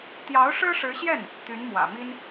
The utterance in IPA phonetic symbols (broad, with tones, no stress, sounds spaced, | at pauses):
t̪ j ɑ˧˥ ʊ̯ ʂ ɻ̩˥ ʂ ɻ̩˧˥ ɕ j ɛ˥˩ n | t̪ y˧˥ n m w ä̰˨˩ m i˥ n